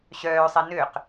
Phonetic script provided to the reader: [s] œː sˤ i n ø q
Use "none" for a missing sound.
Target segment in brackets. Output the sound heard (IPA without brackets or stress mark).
ɕ